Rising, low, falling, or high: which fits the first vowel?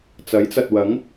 rising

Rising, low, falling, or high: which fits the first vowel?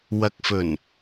low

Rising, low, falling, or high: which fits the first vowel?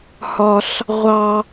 high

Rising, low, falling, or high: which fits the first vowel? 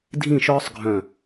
falling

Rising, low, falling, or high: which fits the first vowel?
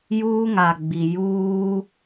high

